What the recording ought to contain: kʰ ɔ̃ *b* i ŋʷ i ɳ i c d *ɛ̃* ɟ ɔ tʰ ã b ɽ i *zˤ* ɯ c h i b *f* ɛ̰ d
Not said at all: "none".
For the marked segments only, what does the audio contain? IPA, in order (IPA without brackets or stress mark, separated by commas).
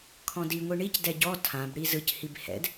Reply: d, ɛ, z, h